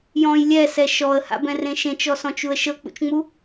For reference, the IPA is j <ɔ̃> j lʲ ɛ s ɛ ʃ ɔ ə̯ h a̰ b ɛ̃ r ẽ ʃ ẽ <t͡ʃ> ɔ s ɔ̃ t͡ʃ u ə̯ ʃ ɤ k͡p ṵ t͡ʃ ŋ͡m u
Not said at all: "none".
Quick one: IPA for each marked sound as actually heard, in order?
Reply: ɔ̃, t͡ʃ

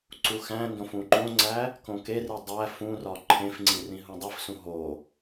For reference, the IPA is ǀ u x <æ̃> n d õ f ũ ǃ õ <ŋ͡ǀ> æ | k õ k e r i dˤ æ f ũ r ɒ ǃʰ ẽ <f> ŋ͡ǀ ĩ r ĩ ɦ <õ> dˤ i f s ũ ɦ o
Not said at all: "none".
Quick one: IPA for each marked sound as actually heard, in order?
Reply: æ̃, ŋ͡ǀ, f, ũ

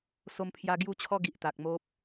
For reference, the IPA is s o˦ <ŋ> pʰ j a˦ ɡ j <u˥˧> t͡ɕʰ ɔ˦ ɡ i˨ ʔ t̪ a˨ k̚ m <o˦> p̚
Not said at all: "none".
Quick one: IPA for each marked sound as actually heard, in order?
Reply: m, u˥˧, o˦

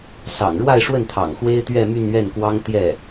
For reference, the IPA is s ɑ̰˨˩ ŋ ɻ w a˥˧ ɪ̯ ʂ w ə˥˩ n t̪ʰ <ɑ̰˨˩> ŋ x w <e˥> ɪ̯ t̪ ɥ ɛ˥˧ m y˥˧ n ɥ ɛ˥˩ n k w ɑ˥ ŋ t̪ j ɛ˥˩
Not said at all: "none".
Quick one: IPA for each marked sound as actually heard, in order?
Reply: ɑ̰˨˩, e˥

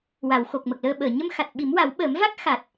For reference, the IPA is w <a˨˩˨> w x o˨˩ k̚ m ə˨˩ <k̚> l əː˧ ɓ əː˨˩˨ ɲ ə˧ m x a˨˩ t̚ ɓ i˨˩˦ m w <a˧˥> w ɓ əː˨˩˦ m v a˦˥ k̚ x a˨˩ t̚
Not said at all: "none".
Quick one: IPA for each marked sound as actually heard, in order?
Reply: a˨˩˨, k̚, a˨˩˦

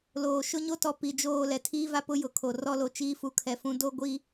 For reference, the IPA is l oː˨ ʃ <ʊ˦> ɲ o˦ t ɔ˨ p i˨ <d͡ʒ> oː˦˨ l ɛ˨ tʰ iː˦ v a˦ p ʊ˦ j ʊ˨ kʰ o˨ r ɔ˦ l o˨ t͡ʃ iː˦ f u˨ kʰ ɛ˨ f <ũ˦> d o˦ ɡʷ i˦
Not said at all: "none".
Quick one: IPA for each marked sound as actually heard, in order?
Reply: ʊ˦, d͡ʒ, ũ˦

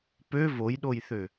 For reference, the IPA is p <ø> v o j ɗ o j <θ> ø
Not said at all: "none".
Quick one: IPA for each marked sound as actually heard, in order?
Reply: ø, θ

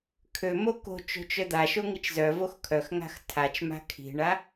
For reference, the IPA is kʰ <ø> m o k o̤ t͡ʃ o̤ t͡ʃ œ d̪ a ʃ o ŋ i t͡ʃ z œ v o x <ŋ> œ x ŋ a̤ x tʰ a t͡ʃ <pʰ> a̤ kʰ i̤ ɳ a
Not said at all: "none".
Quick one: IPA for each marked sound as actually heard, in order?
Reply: ø, kʰ, m

